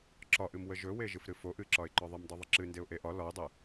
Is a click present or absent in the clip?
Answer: present